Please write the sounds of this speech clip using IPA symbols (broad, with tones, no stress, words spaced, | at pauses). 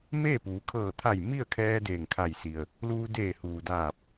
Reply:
meː˥˨puː˩˧ kʰɤː˧˩t̪ʰa˧˩j mi˥˨ə̯kʰɛː˧ deː˧˩ŋkʰa˧˩jsi˩ə̯ | luː˧deː˧˩huː˩ daː˧˩p̚